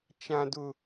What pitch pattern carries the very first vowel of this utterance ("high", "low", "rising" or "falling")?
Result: high